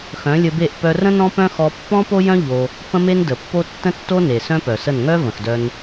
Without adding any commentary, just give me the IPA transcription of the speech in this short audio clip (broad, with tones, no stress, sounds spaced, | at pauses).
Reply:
x œ̃˨˦ lʲ ə˧ b e˦˨ ʔ p œ˧ r ə̃˦ n ɔ̃˦ p œ̃˦ x ɔ˧ pː ɔ̃˦ p o˦ j œ̃˦ ʎ o˧ | p ə̃˦ m e˦ n d ə˨ pː o˦ tː ə̃˦ tː o˦ n e˨ s œ̃˦ p œ˨ s ə˦˨ n ŋ œ˦ v ə̃˨ x d œ˧ n